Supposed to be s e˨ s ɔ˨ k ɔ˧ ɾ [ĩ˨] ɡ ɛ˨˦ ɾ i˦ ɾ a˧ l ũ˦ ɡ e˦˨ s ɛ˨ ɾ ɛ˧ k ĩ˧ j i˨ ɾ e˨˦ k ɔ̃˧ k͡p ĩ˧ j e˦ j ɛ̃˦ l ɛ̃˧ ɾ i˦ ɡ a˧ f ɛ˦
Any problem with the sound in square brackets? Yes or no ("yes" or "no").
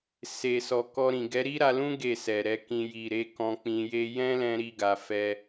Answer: no